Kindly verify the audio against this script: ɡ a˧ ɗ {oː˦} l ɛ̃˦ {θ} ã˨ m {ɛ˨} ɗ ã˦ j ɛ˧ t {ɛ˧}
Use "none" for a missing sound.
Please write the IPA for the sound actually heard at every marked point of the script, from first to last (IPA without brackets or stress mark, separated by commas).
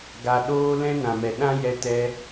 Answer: oː˦, n, ɛ˨, ɛ˧